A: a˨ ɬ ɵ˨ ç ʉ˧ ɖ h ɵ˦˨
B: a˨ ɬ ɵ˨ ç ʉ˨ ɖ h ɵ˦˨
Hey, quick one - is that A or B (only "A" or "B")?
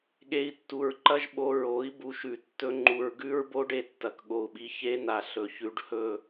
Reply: A